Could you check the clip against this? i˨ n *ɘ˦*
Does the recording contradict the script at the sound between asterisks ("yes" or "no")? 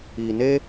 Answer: yes